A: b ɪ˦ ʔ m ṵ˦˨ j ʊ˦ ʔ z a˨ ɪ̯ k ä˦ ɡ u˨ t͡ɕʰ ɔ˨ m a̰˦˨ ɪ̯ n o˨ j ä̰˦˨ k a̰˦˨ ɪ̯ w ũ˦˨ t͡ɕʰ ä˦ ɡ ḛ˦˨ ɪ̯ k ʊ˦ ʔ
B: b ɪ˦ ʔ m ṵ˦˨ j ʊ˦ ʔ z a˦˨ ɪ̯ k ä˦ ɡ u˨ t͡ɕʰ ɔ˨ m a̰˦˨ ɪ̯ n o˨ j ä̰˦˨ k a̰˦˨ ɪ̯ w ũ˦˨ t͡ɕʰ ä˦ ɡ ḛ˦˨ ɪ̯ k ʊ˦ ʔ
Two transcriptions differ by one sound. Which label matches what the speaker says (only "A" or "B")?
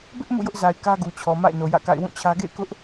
A